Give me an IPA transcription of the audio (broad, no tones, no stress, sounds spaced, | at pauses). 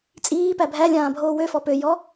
t͡sʼ iː p æ bʱ æ lʲ ãː bʱ oː w ø f ɔ p ø j ɔ